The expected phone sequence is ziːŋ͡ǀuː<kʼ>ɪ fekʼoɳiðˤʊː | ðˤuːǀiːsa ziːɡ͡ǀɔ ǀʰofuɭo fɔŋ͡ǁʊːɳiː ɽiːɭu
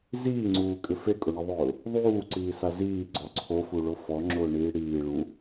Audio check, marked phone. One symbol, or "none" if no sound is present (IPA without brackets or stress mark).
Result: kʼ